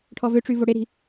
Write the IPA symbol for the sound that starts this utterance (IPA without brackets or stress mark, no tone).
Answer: ʈʰ